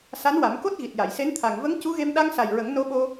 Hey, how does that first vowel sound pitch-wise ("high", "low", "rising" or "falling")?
rising